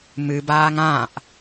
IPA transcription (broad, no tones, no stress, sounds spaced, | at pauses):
m ɨ b aː ŋ ã ʔ